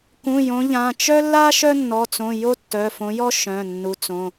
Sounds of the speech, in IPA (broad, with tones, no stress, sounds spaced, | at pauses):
k ũ˩˧˩ j õ˨˦ ʎ ã˩˧˩ t͡ʃ œ˥ lː a˥ ʃ œ˥ nː ɔ˩˧˩ t͡s õ˩˧˩ j o˥ tː œ˩˧˩ f õ˨˦ j ɔ˥ ʃ œ̃˩˧˩ nː u˨˦ t͡s õ˩˧˩